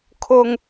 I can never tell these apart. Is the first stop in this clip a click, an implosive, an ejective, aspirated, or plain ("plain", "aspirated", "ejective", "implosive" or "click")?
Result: aspirated